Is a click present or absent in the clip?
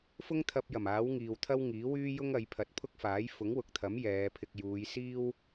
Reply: absent